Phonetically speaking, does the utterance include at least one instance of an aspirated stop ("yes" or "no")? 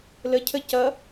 yes